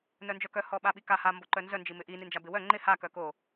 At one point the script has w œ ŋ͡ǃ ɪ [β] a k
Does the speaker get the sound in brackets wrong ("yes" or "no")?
yes